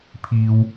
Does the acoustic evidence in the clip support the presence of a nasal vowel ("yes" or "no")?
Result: no